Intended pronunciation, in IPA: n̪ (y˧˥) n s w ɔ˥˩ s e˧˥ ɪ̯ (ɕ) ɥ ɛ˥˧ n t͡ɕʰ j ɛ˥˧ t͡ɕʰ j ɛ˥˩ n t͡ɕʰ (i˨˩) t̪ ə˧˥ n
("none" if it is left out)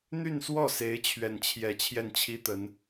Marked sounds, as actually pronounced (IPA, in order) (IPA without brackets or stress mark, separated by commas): y˥˧, t͡ɕʰ, i˥